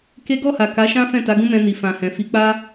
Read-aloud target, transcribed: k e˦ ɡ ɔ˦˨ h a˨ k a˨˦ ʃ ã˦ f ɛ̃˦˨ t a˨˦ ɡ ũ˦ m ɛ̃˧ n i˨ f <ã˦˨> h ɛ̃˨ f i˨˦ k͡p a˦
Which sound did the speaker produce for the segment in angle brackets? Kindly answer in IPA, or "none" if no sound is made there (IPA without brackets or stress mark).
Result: ã˨